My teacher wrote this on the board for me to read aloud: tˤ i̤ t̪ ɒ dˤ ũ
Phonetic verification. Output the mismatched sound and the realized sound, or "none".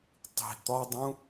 none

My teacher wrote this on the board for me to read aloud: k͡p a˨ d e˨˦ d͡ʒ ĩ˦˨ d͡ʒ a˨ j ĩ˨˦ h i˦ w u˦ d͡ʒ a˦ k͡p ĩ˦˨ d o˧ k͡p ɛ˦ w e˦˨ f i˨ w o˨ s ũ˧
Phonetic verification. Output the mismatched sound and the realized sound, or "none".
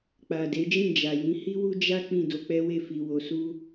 ũ˧ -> u˧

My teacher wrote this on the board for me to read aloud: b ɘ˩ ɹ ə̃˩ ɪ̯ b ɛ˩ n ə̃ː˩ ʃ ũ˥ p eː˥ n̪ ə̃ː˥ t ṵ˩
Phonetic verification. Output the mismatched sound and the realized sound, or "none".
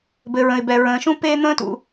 n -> ɹ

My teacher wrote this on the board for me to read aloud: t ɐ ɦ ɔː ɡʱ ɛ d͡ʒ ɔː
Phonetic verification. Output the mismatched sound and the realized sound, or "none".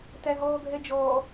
ɐ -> æ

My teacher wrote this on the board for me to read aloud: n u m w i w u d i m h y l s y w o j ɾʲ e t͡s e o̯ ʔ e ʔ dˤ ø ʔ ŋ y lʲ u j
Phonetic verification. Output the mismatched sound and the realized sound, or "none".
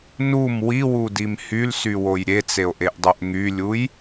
none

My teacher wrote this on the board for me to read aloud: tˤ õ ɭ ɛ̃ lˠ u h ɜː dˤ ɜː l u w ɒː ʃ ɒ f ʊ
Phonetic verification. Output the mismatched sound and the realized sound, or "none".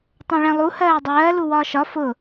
none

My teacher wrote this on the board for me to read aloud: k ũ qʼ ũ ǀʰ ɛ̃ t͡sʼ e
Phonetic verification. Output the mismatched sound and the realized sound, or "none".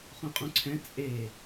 k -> χ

